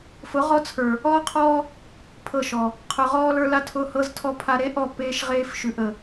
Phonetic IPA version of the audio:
f ʊ˨˦ ʁ ɔ˦ t͡sʰ ə˞˨ | ɔː˦ qʰ ɔː˦ | pʰ ɤ˦˨ ʃ ɔ˨ | qʰ ʊ˨ ʁ ɔː˦ l ə˞˦ l a˦ tʰ ʊː˦ h ɤ˦ z tʰ ɔ˦ pʰ a˦ ɾ e˦ ʔ ɔ˦˨ p eː˦ ʃ ʁ eː˦ f ʃ ʉ˨ ʔ ə˨

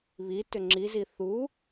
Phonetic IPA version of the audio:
β i t ʏ ŋ͡ǁ i z i θ u

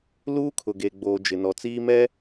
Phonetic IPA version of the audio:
l uː˦ kʰ ʊ˨ ɡ e˨ ɡ͡b oː˨ d͡ʒ ɪ˨ n ɔ˨ t͡s iː˦ m ɛ˦

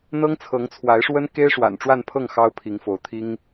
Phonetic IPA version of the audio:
n̪ ɤ˥ ŋ t͡sʰ ɤ˧˥ ŋ t͡sʰ w a˧˥ ɪ̯ ʂ w ə˥ n k e˥ ɪ̯ ʂ w a̰˨˩ n ʈ͡ʂ w a˥˧ n pʰ ɤ˥˩ ŋ x ɑ˥ ʊ̯ pʰ i˧˥ ŋ f o˧˥ ʊ̯ t̪ʰ i˥ ŋ

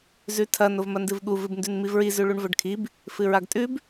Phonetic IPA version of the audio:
z ʉ tʰ ɐ n o v m ɐ n d ɨ v ɠ u v ɨ b n d ʉ n m i v ɹ i z ʉ ɭ u ɳ v ɵ ɖ kʰ i b | f ɨ ɹ a ɡ tʼ ʉ b

